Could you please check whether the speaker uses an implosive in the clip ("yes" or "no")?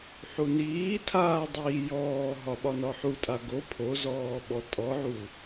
yes